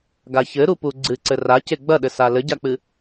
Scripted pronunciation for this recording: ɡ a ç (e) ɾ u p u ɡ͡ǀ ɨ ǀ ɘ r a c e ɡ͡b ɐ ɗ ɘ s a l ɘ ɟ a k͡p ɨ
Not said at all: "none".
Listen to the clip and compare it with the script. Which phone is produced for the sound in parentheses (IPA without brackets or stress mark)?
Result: ɘ